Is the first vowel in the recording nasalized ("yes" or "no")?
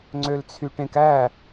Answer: no